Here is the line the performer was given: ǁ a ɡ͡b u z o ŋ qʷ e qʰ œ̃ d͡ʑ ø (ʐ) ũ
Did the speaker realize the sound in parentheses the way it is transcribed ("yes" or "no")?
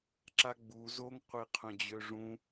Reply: yes